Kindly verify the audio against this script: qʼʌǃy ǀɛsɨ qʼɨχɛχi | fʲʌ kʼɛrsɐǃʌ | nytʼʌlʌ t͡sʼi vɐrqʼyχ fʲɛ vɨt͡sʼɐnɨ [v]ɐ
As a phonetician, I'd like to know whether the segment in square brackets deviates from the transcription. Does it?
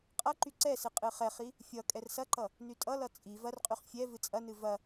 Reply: no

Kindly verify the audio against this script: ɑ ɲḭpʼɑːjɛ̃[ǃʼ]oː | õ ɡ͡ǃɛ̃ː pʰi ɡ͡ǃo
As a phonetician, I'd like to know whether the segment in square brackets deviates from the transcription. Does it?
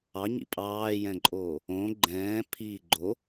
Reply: no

